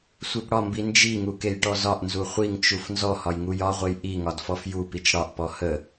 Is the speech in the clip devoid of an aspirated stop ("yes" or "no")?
yes